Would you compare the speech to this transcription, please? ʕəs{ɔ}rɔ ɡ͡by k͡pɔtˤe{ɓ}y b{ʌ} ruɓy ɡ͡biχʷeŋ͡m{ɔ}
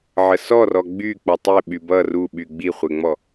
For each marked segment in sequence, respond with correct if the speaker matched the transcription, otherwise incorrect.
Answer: correct, correct, correct, correct

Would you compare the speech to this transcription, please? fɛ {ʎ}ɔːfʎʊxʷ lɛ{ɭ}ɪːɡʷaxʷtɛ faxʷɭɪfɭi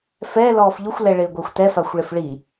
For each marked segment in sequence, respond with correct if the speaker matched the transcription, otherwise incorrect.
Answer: incorrect, correct

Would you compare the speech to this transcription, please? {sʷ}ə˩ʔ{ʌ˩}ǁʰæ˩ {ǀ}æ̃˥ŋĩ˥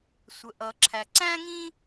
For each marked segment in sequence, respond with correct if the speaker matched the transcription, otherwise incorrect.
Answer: correct, correct, correct

